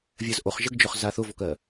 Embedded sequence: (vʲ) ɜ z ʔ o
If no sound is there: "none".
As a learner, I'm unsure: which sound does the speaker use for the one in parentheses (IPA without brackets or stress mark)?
vʲ